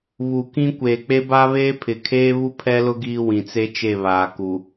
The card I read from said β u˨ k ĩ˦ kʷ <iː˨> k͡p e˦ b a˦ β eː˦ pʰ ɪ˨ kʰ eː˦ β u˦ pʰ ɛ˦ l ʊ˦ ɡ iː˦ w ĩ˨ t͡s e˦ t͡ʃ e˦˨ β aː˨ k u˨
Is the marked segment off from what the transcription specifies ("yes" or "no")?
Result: yes